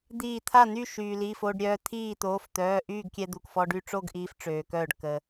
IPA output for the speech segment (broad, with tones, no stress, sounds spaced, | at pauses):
d̪ iː˧˩ t̪ʰ a˥˨ n̪ y˥˨ ʃ yː˩ l i˩˧˩ f o˧ ɖ ɾʲ œː˧ t̪ʰ iː˥˨ t̪ oː˩˧˩ f t̪ œː˩˧˩ ʔ yː˥˨ ɡ kʲ ɛ˧ d̪ u˩ k f ɔ˧ ɖ y˧ ʈ͡ʂ o˥˨ ɡ ʔ iː˧ f ʈ͡ʂ øː˩ k œː˧˩ ɖ k ə˩